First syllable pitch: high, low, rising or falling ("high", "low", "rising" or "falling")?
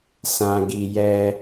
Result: low